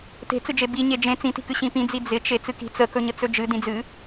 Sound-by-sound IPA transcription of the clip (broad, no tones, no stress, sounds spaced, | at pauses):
t e̤ t͡s ɨ d͡ʒ e b i ɲ e d͡ʒ ẽ t͡s ĩ t i̤ k ɨ ɕ ĩ p ĩ d͡z i d͡z ɪ t͡ʃ e t͡s ɨ k i̤ t͡s ə k ɵ ɲ ə t͡s ɵ d͡ʒ ɨ d ĩ d͡z ɨ